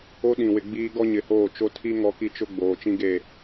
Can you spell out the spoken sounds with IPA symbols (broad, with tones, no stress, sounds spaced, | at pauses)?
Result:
o˦ ɗ ĩ˨ w ɪ˨ ɡ͡b iː˦ ɡ ɔ˦ ɲ ɪ˨ h oː˦˨ t͡ʃ o˦ tʰ i˦ ŋ ɔ˦ k i˦ t͡ʃ ʊ˦ ɡ͡b oː˨ t͡ʃ ĩ˦ ɡ e˦˨